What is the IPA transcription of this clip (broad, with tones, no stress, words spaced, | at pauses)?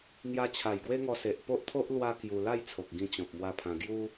ŋja˧t͡ɕʰa˨˩jɡwe˦ŋɔ˧ se˨ʔpo˦ʔt̪ʰo˦ʔ lwa˦kju˧ la˥˧jt͡sʰo˨k̚ ɡĩ˧t͡ɕɔ̃˨p̚mwa˧ pʰã˧ ɡju˦